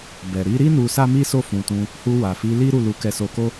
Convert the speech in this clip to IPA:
bɛ˨ ɾi˧ɾi˦ nu˧sa˦mi˦so˦˨ fũ˨tũ˧ | hu˧wa˨fi˨˦li˦ ɾu˦˨lu˨˦kɛ˧so˧ ko˦

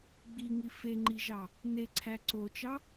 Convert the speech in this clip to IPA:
ɡ͡biŋi feŋ͡ǃiʒɑ | neǀʰæ ǀot͡ʃɑ

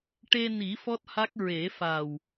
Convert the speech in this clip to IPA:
ʈe˧ni˨˩˦ fɔ˦˥t̚ha˦˥k̚ ɹe˨˩˦fa˨˩w

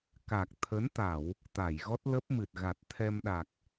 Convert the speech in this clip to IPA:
ka˨˩k̚t̪ʰə˨˦nt̪a˧˩˨w | t̪a˧˩jɣɔ˦˥t̚lə˦˥p̚mɨ˨˩t̚ ɣa˨˩t̚t̪ʰɛ˧mɗa˨˩k̚

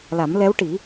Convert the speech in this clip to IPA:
la˨˩˦mlɛ˧˥wʈi˨˩˦

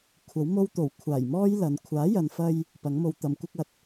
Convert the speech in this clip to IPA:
kʷʰɐ˨˥wmo˥wt̪o˨˩w kʷʰaː˨˩jmɔː˥j lɐ˨˧n kʷʰaː˨˥jɐ˨nfɐ˧j | pɐ˨˥ŋmo˧w t̪ɐ˨˧mkʷɪ˥k̚ɐ˨˥t̚

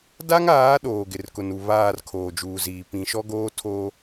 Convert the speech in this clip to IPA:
da˦ŋaː˨˦ ɗoː˨ɡɪ˨rkʊ˨nu˨ βaː˦˨r kʰoː˨d͡ʒuː˨ziː˨ pĩ˨ʃɔ˦ɡoː˦ tʰo˦

